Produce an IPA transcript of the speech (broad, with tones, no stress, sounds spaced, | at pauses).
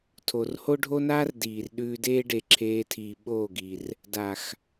tʰ o˨ r h o˦ ɖʱ o˦ n aː˦ r d iː˨ r ɗ ʉː˧ d eː˦ ɖ e˨ ǁʰ eː˧ tʰ iː˨ ɓ oː˦˨ ɡ i˨ r | d a˨ x